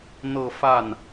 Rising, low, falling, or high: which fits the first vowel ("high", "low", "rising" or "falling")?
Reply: falling